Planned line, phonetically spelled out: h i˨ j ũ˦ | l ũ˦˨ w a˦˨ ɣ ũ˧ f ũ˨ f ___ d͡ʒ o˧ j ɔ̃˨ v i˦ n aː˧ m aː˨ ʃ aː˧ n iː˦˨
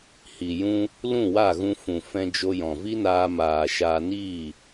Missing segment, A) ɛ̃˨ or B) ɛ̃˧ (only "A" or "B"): B